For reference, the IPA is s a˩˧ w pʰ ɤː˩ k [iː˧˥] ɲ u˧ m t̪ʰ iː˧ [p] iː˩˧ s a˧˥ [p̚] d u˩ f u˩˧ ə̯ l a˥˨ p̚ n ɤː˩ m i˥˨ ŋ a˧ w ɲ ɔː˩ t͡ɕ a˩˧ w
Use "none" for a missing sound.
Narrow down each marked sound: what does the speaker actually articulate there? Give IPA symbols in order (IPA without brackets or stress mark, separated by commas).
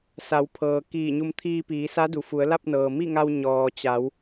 iː˧˩, p, none